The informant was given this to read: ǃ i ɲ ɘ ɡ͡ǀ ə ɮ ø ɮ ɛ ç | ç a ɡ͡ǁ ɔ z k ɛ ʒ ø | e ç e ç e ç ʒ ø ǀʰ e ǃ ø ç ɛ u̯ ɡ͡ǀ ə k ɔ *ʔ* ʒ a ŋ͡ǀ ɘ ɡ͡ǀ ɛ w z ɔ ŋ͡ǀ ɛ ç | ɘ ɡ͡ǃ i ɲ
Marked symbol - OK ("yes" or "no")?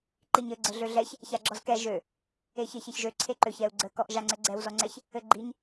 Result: yes